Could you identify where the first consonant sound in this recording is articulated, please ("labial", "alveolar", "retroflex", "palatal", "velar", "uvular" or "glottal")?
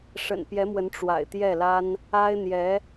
retroflex